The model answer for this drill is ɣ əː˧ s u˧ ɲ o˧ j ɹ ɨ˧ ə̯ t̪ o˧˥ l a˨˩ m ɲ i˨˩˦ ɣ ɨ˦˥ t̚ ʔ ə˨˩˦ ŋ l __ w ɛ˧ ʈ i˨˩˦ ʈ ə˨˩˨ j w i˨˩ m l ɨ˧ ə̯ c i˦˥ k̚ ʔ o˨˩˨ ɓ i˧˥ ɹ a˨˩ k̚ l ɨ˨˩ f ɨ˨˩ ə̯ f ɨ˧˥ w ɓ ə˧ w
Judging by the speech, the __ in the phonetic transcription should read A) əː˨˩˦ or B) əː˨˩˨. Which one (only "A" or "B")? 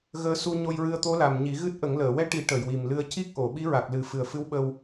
B